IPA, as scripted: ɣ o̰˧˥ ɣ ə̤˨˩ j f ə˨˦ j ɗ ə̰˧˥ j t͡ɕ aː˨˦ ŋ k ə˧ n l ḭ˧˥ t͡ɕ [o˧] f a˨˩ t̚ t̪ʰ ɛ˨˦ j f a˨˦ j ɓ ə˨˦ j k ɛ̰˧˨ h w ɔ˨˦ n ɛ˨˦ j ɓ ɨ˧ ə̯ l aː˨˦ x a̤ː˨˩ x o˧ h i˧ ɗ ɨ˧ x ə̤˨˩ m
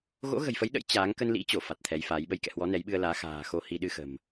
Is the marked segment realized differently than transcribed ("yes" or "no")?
yes